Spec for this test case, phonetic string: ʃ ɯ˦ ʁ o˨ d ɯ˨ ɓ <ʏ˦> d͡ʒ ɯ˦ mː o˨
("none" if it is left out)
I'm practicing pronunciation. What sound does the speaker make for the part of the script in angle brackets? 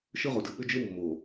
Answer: ʏ˦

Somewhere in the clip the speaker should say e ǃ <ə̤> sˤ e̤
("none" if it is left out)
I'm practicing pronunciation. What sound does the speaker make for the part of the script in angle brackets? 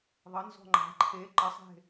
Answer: ə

